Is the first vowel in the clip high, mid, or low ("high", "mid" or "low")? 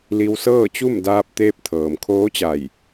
high